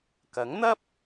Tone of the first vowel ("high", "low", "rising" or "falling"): rising